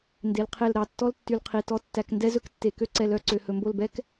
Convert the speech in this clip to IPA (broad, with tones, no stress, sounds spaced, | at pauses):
n d e˧ l qʰ e˥˧ l ɾ ɑ˧˩ tː ɔ˥ l tː y˧ l qʰ i˧˩ t ɔ˥ tː æ˧ k n d ɛ˥ z ɵ˥ k tː e˧˩ k ø˥ ǀ ɛ˧ l œ˥˧ ǀ ø˧ h ɵ˧ m b o˥˧ l b ɛ˥ k